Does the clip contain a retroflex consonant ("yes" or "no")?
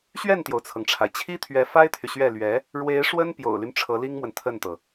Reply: yes